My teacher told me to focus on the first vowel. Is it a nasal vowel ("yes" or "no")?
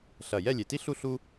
no